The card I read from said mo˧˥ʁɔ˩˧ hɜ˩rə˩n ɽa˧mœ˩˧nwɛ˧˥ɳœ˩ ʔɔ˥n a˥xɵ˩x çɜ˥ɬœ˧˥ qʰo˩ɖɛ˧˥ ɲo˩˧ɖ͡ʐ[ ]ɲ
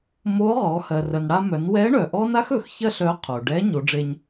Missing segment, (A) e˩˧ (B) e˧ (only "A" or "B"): B